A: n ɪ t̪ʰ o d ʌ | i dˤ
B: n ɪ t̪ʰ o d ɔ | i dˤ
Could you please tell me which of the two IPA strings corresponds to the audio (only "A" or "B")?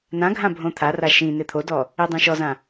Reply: B